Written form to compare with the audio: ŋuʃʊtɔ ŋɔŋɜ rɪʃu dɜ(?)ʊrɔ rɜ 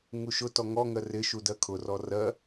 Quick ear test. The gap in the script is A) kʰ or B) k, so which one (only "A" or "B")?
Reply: A